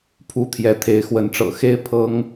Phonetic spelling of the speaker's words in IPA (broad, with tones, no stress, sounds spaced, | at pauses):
pʰ u˦ t̪ʰ j ɛ˨˦ t̪ʰ e˨˦ ɪ̯ x w ə˨˦ n ʈ͡ʂ ɤ̰˨˩ x e˦ ɪ̯ pʰ ɤ˨˦ ŋ